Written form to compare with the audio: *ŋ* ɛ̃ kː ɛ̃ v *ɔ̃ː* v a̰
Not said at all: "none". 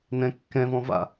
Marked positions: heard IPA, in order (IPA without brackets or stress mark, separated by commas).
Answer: n, ɔ̃